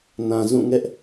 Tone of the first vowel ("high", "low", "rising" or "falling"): low